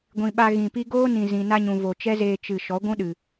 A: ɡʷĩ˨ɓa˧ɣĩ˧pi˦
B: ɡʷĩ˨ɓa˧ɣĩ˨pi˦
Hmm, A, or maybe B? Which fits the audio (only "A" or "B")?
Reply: B